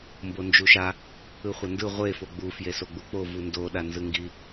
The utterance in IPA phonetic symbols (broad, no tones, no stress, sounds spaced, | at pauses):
m b o n d͡ʒ u ʃ a | ɯ χʷ ʌ n d ɯ ʁʷ e f o ɡ͡b u f j e s o ɡ͡b u k͡p o v u n d o ɗ a n z ɯ ŋ ɡ i